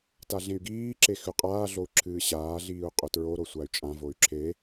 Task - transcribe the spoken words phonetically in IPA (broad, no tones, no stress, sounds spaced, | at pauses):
t a ɮ ẽ y̯ ɡ iː ǁ e x ʉ qʼ aː ɮ o u̯ ǁʰ ɨː ɕ aː ɮ iː u̯ qʼ ɵ t ɹ o ɾ o sʷ a y̯ t͡ʃʼ ã v o y̯ ǁʰ e